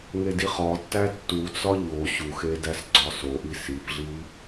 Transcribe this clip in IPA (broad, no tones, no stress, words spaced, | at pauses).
ŋediχɒtːæ tːut͡sɒ ʎo ɕuxe dæsɡ͡ǀɒsoʔi sipɮi